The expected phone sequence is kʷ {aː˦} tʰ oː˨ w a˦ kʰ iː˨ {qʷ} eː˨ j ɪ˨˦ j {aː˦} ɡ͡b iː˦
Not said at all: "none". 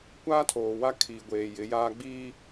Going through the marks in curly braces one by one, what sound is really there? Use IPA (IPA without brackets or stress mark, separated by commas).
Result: aː˦, ɡʷ, aː˦